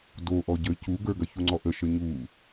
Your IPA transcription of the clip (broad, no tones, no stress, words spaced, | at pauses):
do ʔɔɟə cuɡə˞ ɡɐçuŋ͡ǀɔʔə ʃəɲu